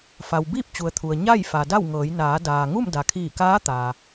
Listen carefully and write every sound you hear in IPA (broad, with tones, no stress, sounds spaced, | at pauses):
f a˩ w b iː˥˨ p̚ t͡ɕ u˩ ə̯ t̪ʰ u˩ ə̯ ɲ a˥˨ j f a˩ d a˥˨ w ŋ ɤː˩˧ j n aː˩˧ d aː˩ ŋ u˥˨ m d a˩ kʰ iː˧˩ k aː˧˥ t̪ a˩